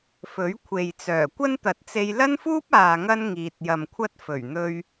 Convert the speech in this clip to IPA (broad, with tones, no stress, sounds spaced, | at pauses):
f ɵ˨˥ ɥ kʷʰ e˨ j t͡s œː˨˩ kʷ ɐ˥ n t̪ ɐ˨˥ t̚ t͡s e˧ j l ɐ˥ n f uː˥ p̚ aː˨ ŋ ɐ˥ n ŋ iː˨ t̚ j ɐ˨ m kʷʰ ɐ˥ t̚ f ɵ˨˩ ɥ n̪ ɵ˧ ɥ